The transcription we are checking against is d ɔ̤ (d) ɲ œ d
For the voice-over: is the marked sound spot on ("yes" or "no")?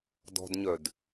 yes